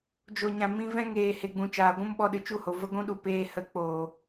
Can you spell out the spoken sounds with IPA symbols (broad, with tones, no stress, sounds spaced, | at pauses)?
d͡ʒ o˨ ɲ ã˨ m ĩ˧ v ɛ̃˦ ŋ eː˨ h e˨ ɡ͡b ũ˨ t͡ʃ aː˨ ɡʷ ũ˦ m ɓ ɔ˧ ɗ ɨ˨ t͡ʃ u˦˨ h o˨ v ə˧ ɡʷ ũ˧ ɗ u˨ p eː˧ h ə˨˦ k͡p oː˨